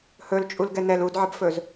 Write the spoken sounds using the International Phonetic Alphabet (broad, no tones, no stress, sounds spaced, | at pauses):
h ɵ l t͡ʃʼ u l ɡ ɛ n ɛ l u d ʕ ə b f ɵ z